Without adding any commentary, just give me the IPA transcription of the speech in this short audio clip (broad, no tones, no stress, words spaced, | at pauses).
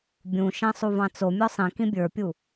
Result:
bʲũ ʃæ̃sˤuvɑ̃t͡so mʲɔsˤĩkĩ bʲə˞pʲu